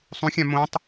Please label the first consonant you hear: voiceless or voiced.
voiceless